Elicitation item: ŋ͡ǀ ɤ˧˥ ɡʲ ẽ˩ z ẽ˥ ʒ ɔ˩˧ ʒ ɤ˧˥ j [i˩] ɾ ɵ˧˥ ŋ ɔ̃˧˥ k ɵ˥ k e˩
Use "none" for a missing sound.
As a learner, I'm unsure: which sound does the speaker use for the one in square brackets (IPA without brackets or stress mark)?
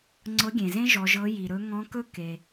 i˩